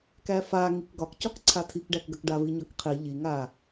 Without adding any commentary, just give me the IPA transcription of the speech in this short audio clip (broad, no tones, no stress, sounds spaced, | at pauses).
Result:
k æ f a ŋ i k ɡ ɒ k c ɒ k ǀʰ a tʰ i k ɖ æ k ɡ ɐ k ɖ a v i ɲ ɒ k qʰ i ʎ i ŋ a